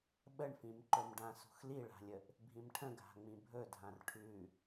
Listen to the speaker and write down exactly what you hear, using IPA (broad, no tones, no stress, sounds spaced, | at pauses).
ɓ ə ɳ f ĩ m ǃ ɵ m ɖ ã s ṳ x l i ɭ a̤ lʲ ə ʔ | bʱ ĩ m ʈʰ ə̃ ɡʱ a̤ ŋ͡m ĩ bʱ ɵ dʱ ã r ʈʰ ʉ